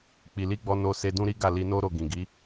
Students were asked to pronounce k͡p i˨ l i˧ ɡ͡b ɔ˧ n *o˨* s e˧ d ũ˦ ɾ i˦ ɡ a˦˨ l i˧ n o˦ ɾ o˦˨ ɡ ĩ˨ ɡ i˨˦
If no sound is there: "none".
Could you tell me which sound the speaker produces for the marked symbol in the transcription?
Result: o˧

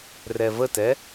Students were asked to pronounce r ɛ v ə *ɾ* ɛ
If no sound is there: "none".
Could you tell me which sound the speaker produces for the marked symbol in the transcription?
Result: t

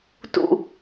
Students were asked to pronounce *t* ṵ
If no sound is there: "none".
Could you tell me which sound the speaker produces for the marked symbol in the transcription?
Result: t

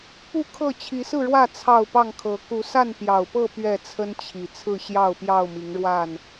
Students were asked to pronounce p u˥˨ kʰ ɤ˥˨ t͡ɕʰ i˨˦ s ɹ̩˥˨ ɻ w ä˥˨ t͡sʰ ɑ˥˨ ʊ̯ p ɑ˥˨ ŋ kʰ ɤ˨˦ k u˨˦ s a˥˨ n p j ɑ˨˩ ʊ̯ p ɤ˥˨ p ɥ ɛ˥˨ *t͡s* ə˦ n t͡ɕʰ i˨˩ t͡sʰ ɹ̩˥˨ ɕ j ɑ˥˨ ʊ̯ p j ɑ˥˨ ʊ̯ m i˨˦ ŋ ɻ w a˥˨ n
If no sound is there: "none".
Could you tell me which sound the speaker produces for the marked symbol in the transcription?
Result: t͡sʰ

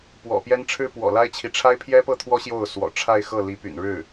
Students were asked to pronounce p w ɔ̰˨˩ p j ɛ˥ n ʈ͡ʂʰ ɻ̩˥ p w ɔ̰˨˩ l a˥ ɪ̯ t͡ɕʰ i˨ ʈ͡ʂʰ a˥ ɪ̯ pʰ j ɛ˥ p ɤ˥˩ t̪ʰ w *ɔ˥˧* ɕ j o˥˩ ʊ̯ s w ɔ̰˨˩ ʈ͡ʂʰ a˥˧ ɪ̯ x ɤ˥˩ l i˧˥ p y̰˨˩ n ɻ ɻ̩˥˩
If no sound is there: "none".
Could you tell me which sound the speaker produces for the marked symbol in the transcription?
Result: ɔ˥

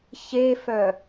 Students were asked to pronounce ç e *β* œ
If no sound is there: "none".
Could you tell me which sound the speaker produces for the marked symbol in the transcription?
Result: f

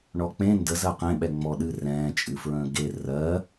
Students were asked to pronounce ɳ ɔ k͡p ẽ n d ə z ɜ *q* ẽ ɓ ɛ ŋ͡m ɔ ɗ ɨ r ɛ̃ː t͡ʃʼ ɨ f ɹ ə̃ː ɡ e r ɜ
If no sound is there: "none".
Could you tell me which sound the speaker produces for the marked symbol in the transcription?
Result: q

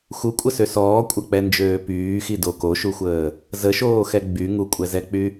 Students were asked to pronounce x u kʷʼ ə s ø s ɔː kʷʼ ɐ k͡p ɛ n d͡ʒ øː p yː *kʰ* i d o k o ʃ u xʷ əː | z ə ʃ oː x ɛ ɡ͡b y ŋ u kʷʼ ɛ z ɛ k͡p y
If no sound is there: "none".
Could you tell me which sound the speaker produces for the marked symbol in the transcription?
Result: x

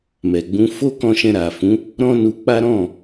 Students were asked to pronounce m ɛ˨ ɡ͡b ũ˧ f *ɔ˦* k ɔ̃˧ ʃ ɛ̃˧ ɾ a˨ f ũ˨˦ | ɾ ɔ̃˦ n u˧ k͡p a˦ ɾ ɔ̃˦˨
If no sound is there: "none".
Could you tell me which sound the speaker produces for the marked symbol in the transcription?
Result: o˦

